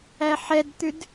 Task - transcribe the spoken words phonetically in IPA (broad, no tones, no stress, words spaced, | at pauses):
æħɛdt̪ʉd